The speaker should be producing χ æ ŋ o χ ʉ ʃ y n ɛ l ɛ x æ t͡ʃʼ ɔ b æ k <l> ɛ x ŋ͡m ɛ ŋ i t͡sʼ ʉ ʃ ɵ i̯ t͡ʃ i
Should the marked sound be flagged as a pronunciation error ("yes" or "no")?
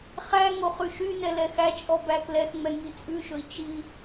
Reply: no